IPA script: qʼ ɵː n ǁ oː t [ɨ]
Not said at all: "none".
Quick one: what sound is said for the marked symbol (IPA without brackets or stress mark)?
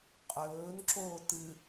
ɨ